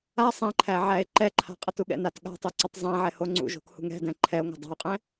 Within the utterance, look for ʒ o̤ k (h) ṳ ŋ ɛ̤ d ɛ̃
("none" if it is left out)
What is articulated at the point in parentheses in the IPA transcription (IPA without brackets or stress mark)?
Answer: h